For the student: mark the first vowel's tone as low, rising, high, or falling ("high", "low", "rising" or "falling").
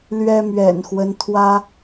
high